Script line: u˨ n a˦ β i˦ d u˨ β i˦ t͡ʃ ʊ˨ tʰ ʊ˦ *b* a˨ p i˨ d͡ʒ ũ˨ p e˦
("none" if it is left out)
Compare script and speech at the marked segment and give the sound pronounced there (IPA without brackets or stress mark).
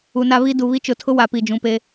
w